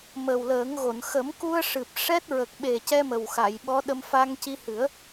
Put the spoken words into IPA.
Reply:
m ə˨˩ w l əː˨˩˦ ŋ ɣ o˨˩˨ n x ə˨˩˦ m k u˧ ə̯ ʂ ɨ˨˩ p̚ ʂ ɛ˦˥ t̚ ɹ ə˨˩ k̚ ɓ e˨˩ c ɛ˧ m ə˨˩ w x a˨˩˨ j ɓ ɔ˧˥ ɗ ə˧ m f a˧ ŋ c i˧ h ɨ˨˩˦ ə̯

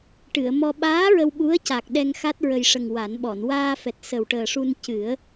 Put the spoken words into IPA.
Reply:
ʈ ɨ˨˩˨ ə̯ m ɔ˧ ɓ aː˧˥ ɹ ə˧ w ɓ u˧˥ ə̯ c a˨˩ k̚ ɗ ɛ˧ ŋ x a˦˥ t̚ ɹ ə˨˩ j ʂ ə˨˩ ŋ w a˨˩˦ n ɓ ɔ˨˩˨ n w aː˧ f ɛ˨˩ t̚ s ə˨˩ w ʈ əː˨˩ ʂ u˧ n c ɨ˨˩˦ ə̯

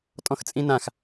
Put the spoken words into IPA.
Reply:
tʼ ɔ̃ x t͡sʼ ĩ n ã x

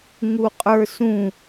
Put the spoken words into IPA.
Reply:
ŋ u qʼ ə˞ s ũ

